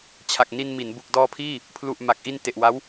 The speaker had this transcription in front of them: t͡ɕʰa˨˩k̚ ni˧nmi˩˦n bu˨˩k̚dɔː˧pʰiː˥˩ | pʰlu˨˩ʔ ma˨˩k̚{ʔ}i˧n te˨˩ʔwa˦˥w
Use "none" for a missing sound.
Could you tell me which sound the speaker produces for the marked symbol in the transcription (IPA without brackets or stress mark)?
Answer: ʔ